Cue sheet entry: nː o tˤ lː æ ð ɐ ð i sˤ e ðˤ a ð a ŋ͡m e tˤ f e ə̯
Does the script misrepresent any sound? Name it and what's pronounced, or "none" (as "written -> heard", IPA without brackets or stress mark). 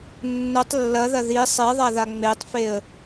æ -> ɐ